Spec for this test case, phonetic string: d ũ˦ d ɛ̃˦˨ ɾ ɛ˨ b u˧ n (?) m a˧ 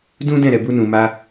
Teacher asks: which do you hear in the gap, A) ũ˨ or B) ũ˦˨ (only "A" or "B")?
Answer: A